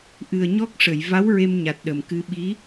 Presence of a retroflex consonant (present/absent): present